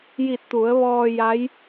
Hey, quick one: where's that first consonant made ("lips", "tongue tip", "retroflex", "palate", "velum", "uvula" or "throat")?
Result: palate